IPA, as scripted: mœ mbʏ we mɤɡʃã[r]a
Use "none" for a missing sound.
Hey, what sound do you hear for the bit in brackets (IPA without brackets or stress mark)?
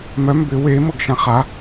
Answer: χ